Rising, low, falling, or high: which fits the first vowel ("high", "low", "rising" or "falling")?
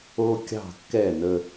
high